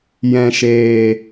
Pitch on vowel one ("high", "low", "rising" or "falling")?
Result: low